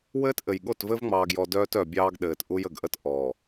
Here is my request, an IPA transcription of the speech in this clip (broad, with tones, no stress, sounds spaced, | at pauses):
w ɘː˦ t ʔ ɘ˨ j ɠ o˦˨ t v ɘ˦ v ŋ͡m ɑː˨ ɡ j ɔ˨ d œː˦ t œ˨ bʲ ɑː˦ ɡ ɗ ɘː˨ t ʔ u˦ j ə˨ ɡ ʔ ə˦ t ʔ ɔː˨